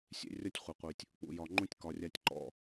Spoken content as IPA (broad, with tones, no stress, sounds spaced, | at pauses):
sʲ ḛ˦ rʲ ɒ˦ tʲ χʷ e˨ qʷ i˨ tʲ | k͡p ṵ˨ j ɒ˨ ŋ͡ǃ ũ˦ tʲ k ɒ˨ rʲ a˦ tʲ ǃ ɔ̰˦